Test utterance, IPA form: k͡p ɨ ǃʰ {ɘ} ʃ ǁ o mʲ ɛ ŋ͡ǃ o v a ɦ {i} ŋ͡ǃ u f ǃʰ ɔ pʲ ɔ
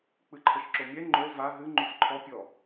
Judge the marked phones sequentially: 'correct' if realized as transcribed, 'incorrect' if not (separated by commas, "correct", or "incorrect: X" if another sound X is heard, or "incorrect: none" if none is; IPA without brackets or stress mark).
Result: correct, incorrect: ɨ